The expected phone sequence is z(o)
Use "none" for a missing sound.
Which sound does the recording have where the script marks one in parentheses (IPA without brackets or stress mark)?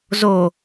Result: o